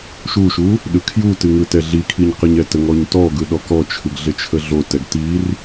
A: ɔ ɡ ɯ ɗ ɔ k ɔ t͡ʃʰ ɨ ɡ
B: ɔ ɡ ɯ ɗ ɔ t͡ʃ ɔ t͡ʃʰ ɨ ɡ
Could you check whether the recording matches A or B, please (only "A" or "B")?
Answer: A